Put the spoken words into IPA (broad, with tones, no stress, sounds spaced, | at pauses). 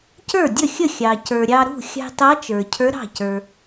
c ə˞˥˩ dʲ ə˥˩ xʲ ə˥˩ xʲ ɑ˩ c ə˞˩ ɾʲ ɑ˧ ɾ ṳ˥˩ xʲ ɑ̤˧ t ɑ˧˥ t͡ʃ ə˞˩ cʰ ə˞˧˥ ɾ ɑ̤˥˩ c ə˞˩